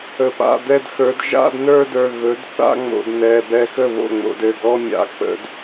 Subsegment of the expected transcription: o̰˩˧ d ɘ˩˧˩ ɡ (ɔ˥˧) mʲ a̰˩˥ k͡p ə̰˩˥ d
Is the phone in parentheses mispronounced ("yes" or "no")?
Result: no